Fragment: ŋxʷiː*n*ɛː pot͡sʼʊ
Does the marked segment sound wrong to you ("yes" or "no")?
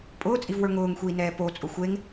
no